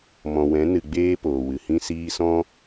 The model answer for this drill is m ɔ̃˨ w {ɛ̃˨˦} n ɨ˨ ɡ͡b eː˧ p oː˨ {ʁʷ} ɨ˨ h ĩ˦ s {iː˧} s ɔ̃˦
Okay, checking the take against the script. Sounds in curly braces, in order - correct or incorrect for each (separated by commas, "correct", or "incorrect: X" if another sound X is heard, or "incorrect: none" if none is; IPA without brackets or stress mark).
correct, incorrect: w, correct